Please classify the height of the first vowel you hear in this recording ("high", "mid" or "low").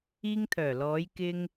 high